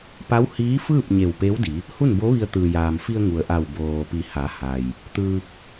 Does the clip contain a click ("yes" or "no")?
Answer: no